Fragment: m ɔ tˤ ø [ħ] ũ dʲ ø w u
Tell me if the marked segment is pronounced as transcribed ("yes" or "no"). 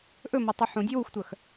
yes